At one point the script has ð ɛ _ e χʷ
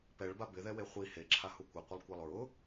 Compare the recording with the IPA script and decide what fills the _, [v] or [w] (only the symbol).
w